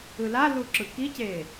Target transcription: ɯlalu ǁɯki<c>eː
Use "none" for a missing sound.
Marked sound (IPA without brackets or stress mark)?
c